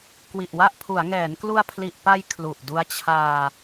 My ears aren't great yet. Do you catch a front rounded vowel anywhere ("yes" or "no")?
no